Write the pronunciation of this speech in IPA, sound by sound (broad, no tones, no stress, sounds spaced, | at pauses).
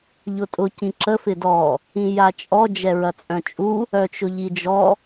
ʎ ʊ tʼ ʊ c ĩ ǁ ə f ɪ d ɔ | ĩ j a t͡ʃʼ ɔ d͡ʒ ɛ ɹ ɐ t͡sʼ œ̃ t͡ʃʼ u | œ t͡ʃ ʊ ʎ i d͡ʒ ɔ